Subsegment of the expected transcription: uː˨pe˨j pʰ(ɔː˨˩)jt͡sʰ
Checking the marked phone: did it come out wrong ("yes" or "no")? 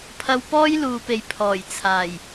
no